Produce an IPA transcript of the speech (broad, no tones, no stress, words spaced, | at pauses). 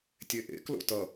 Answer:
tʲeʔḛ klo̰tʌ